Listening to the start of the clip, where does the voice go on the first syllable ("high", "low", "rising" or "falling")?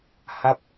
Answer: falling